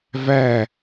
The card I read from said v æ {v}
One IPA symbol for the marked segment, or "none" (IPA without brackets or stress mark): none